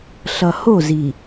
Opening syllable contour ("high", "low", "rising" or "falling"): low